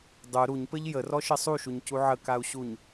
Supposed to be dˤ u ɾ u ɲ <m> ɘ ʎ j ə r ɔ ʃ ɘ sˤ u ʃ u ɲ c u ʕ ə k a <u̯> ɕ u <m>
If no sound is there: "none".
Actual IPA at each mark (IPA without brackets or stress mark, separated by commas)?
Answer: p, u̯, ɲ